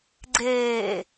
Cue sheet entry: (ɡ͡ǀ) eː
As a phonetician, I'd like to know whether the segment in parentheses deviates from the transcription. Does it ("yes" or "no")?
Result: no